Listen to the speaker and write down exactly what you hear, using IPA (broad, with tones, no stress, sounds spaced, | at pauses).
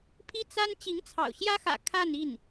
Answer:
pʰ i˥ t͡s a˥ n t͡ɕ i˧˥ ŋ t͡sʰ ɑ̰˨˩ ʊ̯ ɕ j ä˥ x ä̰˨˩ kʰ a˥˧ n i˥˩ n